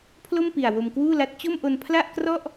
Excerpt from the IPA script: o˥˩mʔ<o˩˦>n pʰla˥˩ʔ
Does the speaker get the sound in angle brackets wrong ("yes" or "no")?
yes